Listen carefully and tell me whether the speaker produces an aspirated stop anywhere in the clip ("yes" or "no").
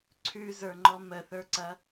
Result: yes